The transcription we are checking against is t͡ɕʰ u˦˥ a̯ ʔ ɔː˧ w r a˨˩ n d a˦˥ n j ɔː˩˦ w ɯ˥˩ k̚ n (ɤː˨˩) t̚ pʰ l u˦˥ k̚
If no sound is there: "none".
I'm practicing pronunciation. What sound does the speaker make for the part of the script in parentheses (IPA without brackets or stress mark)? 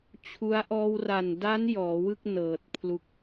ɤː˨˩